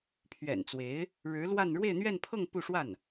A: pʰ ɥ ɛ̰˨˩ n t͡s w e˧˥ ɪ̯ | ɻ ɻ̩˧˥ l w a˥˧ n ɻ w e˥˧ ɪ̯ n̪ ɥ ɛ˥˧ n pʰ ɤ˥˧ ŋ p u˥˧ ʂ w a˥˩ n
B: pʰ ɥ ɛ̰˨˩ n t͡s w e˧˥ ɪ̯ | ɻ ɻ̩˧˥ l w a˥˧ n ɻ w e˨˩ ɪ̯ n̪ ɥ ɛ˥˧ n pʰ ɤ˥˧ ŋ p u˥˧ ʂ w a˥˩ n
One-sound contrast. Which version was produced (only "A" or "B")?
A